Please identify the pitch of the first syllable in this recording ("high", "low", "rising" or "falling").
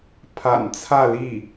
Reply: low